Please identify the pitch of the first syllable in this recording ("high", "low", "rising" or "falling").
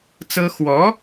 high